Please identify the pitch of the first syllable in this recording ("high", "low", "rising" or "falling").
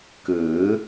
rising